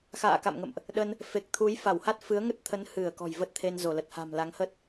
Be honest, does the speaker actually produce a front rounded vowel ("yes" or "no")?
no